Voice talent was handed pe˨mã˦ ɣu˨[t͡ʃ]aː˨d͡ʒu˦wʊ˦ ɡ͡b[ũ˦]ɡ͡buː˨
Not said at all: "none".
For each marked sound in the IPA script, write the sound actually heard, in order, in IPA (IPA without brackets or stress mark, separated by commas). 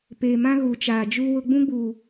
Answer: t͡ʃ, ũ˦